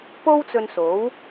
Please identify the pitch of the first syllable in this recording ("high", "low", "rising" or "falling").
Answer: high